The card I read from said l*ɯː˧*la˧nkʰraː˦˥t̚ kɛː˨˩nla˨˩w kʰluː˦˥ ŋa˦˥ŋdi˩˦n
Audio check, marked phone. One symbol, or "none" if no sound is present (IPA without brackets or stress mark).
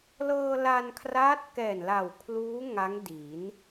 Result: ɤː˧